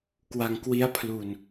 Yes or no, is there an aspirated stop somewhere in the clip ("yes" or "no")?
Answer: yes